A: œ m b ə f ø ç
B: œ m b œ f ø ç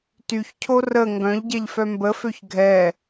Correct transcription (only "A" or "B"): A